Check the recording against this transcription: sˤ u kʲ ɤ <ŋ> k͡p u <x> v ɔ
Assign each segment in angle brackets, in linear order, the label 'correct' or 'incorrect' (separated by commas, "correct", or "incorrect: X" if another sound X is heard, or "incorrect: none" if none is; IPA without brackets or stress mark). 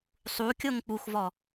correct, correct